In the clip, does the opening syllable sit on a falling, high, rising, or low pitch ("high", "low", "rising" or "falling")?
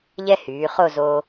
high